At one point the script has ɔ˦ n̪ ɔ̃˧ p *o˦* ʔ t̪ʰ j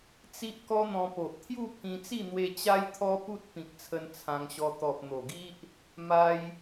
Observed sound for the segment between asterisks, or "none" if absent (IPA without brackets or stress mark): o˨